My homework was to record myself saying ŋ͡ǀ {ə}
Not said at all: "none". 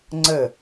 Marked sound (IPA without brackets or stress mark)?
ə